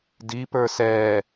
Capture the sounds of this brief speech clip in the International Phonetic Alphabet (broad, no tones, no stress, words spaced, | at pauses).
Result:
dipə˞ sɛ